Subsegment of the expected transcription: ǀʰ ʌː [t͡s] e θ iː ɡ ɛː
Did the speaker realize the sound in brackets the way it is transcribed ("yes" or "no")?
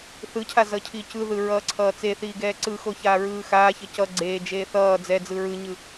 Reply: yes